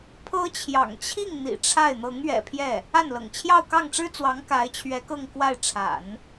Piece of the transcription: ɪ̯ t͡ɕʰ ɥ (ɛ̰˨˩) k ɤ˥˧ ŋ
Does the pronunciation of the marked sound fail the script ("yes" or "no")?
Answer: yes